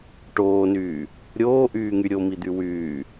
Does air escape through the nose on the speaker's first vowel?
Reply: no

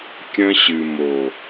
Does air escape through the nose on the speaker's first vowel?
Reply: yes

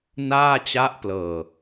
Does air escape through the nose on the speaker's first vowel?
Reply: no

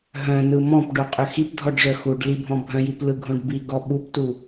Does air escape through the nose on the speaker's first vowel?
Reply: yes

